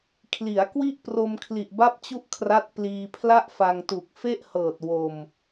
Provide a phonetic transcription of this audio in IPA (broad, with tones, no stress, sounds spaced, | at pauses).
kʰ l i˩˦ a̯ k w i˥˩ ʔ p r o˧ m kʰ l i˨˩ ʔ b a˥˩ p̚ t͡ɕ u˥˩ ʔ kʰ r a˦˥ t̚ p l iː˧ pʰ l a˥˩ ʔ f a˧ ŋ t u˨˩ k̚ f e˥˩ ʔ h ɤː˨˩ t̚ w o˧ m